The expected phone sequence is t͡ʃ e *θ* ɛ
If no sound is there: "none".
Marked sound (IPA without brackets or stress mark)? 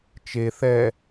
θ